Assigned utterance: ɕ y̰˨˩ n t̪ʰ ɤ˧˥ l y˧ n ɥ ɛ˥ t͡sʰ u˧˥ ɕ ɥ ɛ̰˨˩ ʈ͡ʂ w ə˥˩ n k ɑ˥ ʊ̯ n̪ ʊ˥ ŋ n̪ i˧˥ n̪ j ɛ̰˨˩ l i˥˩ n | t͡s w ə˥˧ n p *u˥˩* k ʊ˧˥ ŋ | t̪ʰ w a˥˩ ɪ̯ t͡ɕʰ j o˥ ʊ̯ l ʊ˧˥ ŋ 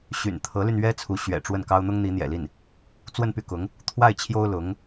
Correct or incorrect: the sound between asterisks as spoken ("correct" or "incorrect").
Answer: incorrect